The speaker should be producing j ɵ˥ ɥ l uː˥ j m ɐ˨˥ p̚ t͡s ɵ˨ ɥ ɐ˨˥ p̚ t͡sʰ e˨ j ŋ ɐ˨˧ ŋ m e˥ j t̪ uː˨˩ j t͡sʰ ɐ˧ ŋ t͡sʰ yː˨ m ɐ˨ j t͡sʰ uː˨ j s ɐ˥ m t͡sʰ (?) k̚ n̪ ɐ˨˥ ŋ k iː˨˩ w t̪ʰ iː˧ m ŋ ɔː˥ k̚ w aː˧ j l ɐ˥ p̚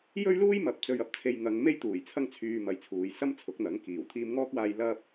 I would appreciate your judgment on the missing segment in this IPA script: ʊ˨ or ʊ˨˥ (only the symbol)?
ʊ˨˥